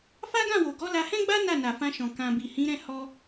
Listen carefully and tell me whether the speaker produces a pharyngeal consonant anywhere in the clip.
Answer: no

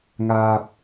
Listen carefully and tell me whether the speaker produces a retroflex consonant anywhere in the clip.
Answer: no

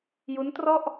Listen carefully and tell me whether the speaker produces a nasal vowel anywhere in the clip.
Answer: no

